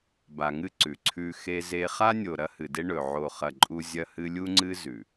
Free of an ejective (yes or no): no